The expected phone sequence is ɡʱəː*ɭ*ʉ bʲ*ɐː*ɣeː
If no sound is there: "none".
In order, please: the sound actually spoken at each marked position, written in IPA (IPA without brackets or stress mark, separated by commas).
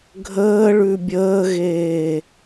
ɭ, əː